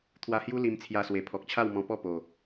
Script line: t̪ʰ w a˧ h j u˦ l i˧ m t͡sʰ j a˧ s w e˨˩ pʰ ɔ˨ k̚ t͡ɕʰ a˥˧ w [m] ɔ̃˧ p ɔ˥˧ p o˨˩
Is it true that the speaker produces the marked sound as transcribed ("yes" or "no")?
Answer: yes